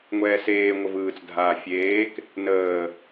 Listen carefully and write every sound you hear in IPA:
ŋʷɛːseː ŋʷəvɯːt͡s dʱaːfʲeːk | nəː

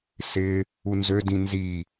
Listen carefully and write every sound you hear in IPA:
sɪ | unzødĩ nzi

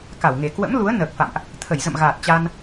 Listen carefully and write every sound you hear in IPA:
ka˧˩wŋe˨˩ kwə̰˧˥mlu˨˦ə̯ nəː˨˩k̚fa̰˧˨mʔ | t̪ʰə˧˩jzə̰˧˨mɣaː˨˩t̚ t͡ɕa˧n

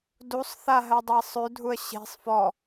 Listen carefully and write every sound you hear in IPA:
dusˤθa ɦɜdˤasˤʉdʱuə̯ ɕe̤sˤ fɔ

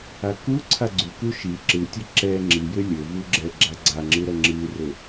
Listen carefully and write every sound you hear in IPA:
akuǀʰa ɡ͡ǀuku ʃi ǁɨtʲɘ ǁɛ ŋ͡ǁijɘ lʲɘ vuɡ͡ǁɛɡ͡ǁa ɡ͡ǀaŋ͡ǁɨ ɾɐŋ͡ǁɨrɘ

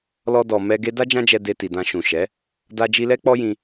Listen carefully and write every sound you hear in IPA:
lɔ˧ dɔ˨mɛ˧ ɡe˧da˦ d͡ʒã˦d͡ʒɛ˧ de˧ti˨dã˧ʃũ˨ ʃɛ˨˦ | da˧d͡ʒi˧lɛ˦ k͡pɔ˦jĩ˧

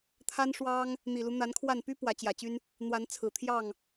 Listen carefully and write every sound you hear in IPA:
t̪ʰa˦nʂwɑ˦ŋ | n̪i˨˩lu˦n̪a˨˦nkʰwa˥˨n py˦ pwä˨˦t͡ɕjä˨˩t͡ɕy˦n | n̪wa˨˦nt͡sʰɹ̩˨˩t̪ʰjɑ˥˨ŋ

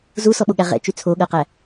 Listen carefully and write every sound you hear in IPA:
zusɔɓoɠæ ʁɛ̰t͡ʃy t͡sʰoɠɜqæ

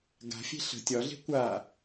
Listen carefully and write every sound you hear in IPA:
ɡa̤fʲe̤ ɬə̤ tʲɒɮe̤ kʷa

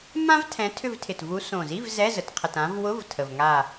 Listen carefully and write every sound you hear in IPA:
mã˥vtʰɛ̃˨˦ tʰʏ˦˨vtʰɪ˨˩tvu˨˦ sõ˨˩zi˧˥˧v zɛ˧˥˧zə˨˩tqʰə˨˩tã˨˦v wʊ˧˥˧v tʰə˨˩vŋa˦˨

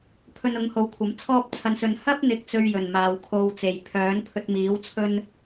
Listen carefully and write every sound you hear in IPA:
pʰɵ˧nʊ˨˥ŋho˨˥w kʷʰɐ˨˥mt͡sʰɔː˥p̚t͡sʰɐ˧nsɵ˧n hɐ˥p̚n̪ɪ˨k̚ t͡sɵ˧ɥ jɵ˨˩nmaː˨wkʰo˧wt͡se˨˩j pʰœː˨˥npʰɵ˧t̚miː˨˥w t͡sʰɵ˥n

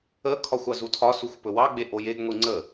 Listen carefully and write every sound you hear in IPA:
əkʰɒxʷ ɑzutʰɒ suxʷpɵwɑ ɡ͡beʔojeɡŋʷi ŋ͡ǀə

